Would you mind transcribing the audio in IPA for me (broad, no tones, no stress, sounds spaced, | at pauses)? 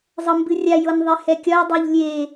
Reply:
zˤ ɤ m b ɨ rʲ a j ɤ n ðˤ e h ɛ kʲ ɒ j dˤ e ʎ lʲ e